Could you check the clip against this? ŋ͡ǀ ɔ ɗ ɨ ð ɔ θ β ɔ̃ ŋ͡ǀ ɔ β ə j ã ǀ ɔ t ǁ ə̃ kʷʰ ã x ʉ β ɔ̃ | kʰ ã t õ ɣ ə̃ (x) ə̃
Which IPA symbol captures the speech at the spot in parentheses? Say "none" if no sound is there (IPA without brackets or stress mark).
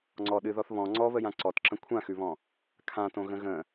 ɣ